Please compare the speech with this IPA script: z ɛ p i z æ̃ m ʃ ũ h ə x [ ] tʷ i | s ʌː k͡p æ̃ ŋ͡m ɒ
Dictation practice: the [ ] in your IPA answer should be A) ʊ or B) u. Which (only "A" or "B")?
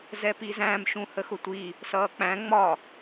A